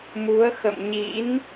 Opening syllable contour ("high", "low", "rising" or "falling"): rising